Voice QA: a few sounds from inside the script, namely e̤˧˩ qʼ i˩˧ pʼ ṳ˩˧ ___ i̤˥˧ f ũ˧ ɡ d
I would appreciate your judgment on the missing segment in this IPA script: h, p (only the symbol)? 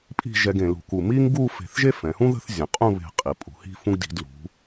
h